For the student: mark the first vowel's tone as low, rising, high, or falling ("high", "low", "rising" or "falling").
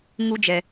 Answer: high